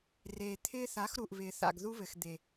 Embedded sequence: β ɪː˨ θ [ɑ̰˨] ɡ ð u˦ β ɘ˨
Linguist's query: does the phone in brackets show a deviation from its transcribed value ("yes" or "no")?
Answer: yes